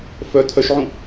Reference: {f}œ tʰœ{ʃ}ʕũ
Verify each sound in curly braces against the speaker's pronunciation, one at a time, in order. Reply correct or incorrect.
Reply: correct, correct

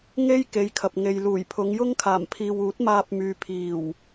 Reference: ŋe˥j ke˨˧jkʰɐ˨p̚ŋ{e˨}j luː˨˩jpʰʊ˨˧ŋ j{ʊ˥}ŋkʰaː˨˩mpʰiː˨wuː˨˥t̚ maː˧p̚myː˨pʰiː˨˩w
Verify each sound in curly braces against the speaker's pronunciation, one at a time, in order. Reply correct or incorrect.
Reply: correct, correct

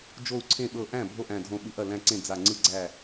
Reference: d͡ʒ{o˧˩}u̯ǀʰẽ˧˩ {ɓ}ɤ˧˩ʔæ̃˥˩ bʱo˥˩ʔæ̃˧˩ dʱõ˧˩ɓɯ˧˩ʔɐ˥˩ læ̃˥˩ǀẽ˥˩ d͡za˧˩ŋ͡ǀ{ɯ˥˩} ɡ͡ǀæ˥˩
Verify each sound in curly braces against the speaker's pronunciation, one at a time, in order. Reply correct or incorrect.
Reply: correct, correct, correct

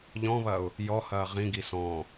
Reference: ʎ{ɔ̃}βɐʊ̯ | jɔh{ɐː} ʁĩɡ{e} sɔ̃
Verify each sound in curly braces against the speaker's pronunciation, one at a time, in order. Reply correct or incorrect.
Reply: correct, correct, incorrect

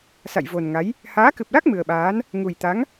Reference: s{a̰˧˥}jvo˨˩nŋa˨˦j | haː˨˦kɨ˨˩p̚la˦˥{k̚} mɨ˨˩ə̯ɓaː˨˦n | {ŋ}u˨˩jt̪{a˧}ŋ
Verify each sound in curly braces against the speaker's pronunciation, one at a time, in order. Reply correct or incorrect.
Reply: incorrect, correct, correct, incorrect

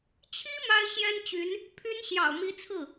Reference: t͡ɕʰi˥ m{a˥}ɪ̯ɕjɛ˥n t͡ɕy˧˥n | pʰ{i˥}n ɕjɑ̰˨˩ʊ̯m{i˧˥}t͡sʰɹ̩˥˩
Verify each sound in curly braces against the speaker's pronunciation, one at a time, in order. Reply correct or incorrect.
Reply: correct, incorrect, correct

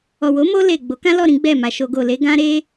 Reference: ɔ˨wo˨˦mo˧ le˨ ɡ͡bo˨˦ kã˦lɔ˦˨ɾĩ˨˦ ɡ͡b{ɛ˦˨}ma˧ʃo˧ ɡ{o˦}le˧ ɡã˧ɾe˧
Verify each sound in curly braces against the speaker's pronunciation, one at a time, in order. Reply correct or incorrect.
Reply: correct, incorrect

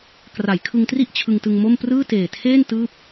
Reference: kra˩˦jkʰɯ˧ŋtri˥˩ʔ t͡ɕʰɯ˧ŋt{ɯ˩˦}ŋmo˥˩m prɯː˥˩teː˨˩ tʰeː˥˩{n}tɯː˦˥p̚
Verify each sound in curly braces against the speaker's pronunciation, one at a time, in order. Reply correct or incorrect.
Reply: incorrect, correct

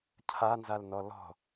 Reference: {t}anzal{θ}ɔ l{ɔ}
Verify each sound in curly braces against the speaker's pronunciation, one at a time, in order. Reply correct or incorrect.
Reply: incorrect, incorrect, incorrect

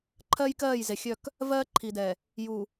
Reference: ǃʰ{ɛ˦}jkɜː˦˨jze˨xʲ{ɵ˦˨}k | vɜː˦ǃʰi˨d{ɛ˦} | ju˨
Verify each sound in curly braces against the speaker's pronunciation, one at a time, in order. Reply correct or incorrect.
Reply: incorrect, incorrect, incorrect

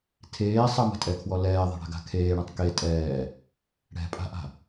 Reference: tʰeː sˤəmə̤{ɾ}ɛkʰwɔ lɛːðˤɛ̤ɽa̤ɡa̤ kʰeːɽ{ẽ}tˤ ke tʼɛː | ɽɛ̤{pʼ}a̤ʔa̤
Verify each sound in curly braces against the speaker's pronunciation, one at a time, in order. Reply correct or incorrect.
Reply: incorrect, correct, correct

